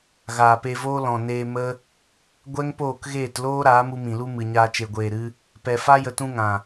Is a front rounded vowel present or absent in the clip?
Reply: absent